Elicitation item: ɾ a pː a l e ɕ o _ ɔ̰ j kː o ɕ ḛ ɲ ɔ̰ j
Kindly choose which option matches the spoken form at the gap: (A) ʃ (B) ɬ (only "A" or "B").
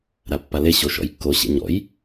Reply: A